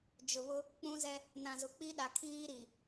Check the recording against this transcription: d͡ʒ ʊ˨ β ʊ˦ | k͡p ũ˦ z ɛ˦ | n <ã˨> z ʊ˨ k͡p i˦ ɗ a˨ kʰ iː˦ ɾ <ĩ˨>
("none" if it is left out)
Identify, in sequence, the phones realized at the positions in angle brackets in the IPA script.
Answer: ã˨, i˨

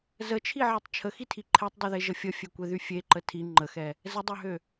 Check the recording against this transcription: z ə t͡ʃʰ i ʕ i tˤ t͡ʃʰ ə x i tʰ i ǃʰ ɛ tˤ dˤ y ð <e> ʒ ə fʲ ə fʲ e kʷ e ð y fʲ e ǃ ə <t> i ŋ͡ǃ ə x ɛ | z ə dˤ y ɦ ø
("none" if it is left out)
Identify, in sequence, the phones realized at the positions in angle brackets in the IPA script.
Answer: e, tʰ

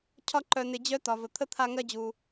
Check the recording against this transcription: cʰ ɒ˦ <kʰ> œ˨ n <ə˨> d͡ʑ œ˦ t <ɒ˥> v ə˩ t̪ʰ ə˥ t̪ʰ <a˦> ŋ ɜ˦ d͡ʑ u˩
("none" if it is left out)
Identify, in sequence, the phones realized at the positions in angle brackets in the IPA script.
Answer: ǃ, ɪ˨, ɒ˩, a˦

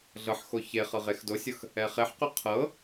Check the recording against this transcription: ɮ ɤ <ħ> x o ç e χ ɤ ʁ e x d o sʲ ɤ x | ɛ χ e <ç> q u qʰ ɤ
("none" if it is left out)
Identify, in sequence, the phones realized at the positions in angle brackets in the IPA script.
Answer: ħ, ħ

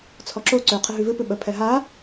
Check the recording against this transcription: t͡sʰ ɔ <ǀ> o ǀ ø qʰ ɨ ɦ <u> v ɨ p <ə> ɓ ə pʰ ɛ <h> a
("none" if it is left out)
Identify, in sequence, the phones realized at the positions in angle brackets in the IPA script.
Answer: ǁ, ʉ, ɨ, ɦ

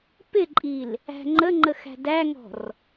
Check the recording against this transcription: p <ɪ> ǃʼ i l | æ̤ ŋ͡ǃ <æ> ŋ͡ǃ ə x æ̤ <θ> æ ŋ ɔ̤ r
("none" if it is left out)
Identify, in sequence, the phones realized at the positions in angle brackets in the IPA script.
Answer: ɪ, ə, d

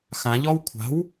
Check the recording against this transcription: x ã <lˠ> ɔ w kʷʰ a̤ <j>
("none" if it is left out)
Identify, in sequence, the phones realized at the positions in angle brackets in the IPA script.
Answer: ʎ, w

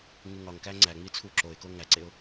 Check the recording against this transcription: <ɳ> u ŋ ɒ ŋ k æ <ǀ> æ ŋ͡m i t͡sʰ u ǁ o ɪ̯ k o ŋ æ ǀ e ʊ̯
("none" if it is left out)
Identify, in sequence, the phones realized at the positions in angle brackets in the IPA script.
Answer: ŋ, ŋ͡ǀ

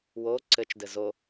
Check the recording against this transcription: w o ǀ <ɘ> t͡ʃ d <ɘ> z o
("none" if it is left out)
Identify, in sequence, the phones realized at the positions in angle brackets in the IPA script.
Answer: ɘ, ɘ

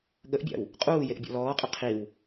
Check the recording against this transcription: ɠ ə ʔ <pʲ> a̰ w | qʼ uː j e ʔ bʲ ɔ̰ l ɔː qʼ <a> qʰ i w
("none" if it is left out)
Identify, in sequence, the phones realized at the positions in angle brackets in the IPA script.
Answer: bʲ, ə

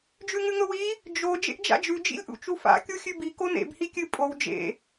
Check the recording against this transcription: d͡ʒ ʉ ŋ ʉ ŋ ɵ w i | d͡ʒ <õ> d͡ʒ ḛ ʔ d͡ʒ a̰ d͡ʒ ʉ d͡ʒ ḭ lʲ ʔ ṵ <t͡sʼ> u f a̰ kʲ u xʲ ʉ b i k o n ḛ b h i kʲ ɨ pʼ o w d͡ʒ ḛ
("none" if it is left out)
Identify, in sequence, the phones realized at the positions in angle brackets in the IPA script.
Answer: o, t͡ʃ

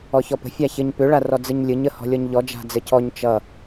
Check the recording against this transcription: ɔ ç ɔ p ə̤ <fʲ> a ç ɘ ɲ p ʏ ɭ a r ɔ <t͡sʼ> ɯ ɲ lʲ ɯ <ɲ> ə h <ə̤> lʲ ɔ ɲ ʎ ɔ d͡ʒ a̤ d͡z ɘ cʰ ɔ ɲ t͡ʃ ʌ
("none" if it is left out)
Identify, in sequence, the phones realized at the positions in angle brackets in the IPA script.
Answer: fʲ, d͡z, ɲ, ɔ̤

